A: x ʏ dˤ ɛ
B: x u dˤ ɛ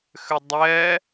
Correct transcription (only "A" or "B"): A